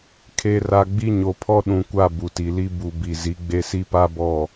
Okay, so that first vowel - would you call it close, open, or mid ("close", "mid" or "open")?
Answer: mid